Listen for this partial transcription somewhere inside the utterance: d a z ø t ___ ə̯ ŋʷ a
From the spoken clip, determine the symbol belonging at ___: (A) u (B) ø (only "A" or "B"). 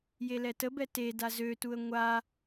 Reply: A